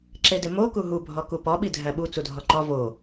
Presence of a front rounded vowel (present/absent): absent